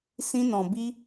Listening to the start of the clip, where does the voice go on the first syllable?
high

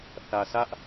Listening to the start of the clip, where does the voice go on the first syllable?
low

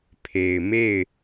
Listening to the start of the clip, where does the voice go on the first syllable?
low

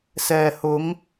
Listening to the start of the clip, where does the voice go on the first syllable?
low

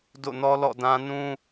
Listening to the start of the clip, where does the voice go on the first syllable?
falling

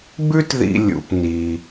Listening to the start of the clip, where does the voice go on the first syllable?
high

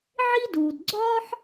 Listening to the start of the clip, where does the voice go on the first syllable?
high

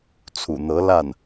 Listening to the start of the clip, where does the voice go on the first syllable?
low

